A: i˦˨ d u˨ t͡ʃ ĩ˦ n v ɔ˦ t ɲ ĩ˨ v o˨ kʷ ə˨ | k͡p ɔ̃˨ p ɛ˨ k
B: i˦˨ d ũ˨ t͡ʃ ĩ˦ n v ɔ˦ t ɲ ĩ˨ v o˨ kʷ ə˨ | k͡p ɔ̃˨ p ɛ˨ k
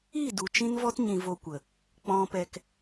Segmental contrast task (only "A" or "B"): A